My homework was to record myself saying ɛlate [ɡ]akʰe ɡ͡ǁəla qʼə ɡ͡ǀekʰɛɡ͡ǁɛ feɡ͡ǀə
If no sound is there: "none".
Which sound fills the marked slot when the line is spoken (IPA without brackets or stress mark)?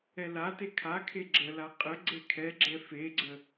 kʰ